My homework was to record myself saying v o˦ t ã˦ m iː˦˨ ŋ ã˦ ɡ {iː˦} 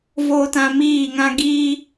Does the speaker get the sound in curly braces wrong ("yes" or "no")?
no